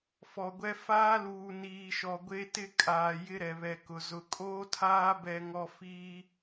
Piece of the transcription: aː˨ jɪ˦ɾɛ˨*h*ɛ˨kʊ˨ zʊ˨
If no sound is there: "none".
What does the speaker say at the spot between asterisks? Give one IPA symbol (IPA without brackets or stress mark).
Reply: β